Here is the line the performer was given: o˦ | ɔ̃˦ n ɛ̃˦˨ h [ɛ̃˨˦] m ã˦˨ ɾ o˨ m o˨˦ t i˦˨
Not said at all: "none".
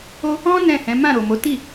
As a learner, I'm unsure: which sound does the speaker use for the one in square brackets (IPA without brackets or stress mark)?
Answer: ɛ̃˨˦